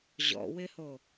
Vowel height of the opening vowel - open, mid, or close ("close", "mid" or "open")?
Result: mid